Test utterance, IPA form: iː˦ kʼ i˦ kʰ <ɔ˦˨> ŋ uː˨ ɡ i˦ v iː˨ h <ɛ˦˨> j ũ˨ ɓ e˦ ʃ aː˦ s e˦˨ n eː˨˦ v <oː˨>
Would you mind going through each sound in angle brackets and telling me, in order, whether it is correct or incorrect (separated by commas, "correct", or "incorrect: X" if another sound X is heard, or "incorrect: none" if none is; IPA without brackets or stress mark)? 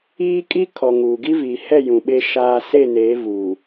incorrect: ɔ˨, correct, incorrect: uː˨